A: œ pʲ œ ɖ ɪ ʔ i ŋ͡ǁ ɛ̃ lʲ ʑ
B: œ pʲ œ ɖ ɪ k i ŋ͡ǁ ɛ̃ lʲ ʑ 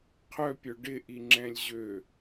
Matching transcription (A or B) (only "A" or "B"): A